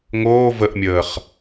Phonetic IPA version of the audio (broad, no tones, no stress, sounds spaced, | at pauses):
ŋ oː v ə ʔ mʲ əː χ